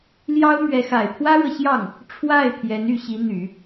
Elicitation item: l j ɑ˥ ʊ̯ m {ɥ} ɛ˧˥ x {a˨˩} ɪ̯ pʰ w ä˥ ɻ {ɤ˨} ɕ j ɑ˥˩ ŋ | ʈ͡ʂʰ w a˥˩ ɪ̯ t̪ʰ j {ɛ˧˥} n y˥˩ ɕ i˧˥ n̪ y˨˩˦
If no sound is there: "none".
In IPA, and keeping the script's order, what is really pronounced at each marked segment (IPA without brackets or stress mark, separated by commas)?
ɥ, a˨˩, ɤ˨, ɛ˧˥